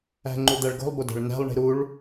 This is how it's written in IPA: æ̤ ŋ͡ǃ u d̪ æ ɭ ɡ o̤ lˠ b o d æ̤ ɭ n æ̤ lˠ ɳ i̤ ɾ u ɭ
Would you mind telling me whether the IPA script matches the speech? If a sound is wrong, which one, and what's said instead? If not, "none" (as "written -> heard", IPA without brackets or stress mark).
none